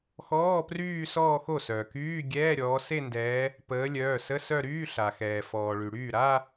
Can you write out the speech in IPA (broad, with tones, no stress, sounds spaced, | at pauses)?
x ɔː˧˥˧ p r yː˥˧ s ɔː˥˧ x o˥˩ s œː˩ k yː˧˥˧ ɡʲ ɛː˧˥˧ ɾʲ ɔː˨˦ s e˥˧ n d ɛː˨˦ | p əː˨˦ lʲ œː˩˧˩ s ə˧˥˧ s œ˥˧ ɾ yː˧˥˧ ɬ a˩ x ɛː˩ f ɔː˩ ɭ y˩ ɽ yː˥˩ ɾ a˥˧